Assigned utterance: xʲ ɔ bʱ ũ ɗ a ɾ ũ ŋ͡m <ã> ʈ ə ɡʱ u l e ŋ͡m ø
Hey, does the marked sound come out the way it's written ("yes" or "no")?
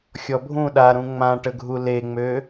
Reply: yes